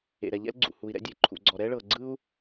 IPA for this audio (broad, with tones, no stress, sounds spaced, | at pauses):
ḛ˩ ɾ ɛ˩ ʎ ɛ̰˥ l ɡ͡ǀ ṵ˩ h u˩ i̯ ɾ ɛ̰˥ dʲ e˩ ǃʰ ṵ˩ ɡ͡ǀ ɔ˩ ɾ ɛ˥ ɭ ɤ˩ ɡ͡ǀ ɯ˥ u̯